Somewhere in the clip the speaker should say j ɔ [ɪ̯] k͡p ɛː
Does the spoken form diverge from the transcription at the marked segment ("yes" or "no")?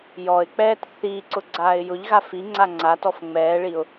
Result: no